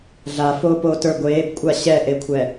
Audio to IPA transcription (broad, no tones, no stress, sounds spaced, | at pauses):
ɮ a f oː p oː t ə˞ ɡʷ eː b kʷʼ a ɕ ɛ ʔ e kʷʰ ɛ